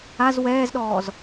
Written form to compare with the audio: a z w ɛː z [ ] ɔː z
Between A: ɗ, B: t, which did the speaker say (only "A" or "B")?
A